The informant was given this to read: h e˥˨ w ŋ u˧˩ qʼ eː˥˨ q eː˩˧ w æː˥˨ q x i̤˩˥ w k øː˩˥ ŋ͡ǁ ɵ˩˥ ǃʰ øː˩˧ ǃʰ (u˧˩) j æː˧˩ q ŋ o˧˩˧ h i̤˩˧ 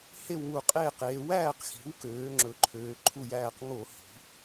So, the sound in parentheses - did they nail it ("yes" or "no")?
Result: yes